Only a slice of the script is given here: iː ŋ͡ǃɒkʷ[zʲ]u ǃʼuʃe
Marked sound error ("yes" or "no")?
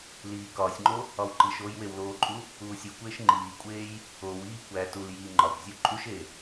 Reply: no